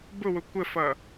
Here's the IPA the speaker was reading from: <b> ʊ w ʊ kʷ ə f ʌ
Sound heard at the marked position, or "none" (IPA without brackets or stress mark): b